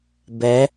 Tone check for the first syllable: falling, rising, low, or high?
rising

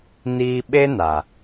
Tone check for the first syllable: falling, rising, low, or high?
high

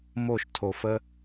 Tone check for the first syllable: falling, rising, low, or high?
falling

